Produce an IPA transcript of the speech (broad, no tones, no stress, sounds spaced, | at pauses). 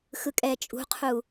x ɯ kʼ ɛ t͡ʃʼ ṳ qʰ u